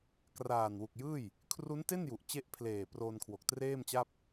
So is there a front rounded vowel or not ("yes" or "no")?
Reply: no